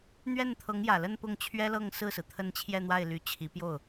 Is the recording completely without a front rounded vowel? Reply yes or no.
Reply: no